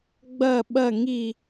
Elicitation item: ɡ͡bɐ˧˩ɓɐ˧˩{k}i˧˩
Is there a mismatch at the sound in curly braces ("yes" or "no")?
yes